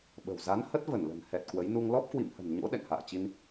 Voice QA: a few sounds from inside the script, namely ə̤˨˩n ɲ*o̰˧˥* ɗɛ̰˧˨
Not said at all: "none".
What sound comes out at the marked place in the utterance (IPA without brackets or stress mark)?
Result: o̰˧˥